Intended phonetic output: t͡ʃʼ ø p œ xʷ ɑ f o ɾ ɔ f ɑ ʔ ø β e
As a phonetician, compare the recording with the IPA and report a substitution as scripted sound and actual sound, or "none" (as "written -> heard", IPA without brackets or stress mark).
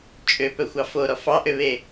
none